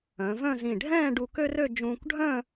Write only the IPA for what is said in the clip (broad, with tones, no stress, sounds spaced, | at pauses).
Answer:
œ̃˩˧ v œ̃˥˧ z ĩ˧˩ ɖʱ ɛ̃ː˥˧ ɖ u˧ k ø˥ r ø˥˧ d͡ʒ ũː˧ kʷ ɖʱ œ̃˥˧